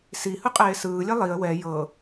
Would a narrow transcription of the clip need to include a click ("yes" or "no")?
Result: no